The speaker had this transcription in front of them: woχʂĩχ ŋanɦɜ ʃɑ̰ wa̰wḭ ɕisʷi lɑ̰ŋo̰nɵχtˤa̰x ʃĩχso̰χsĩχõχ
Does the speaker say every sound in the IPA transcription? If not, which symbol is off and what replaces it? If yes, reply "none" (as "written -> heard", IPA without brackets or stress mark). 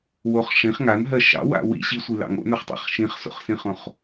x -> χ